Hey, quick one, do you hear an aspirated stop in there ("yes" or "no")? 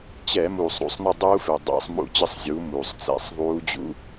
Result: no